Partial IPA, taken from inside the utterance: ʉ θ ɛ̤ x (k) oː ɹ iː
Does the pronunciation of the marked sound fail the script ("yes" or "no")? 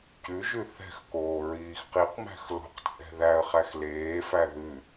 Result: no